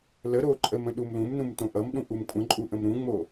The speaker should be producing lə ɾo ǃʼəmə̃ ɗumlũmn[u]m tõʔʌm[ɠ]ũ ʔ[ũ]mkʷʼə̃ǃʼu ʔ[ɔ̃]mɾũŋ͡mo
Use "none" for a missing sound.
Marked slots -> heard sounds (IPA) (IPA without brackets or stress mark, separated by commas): ũ, ɗ, u, ə̃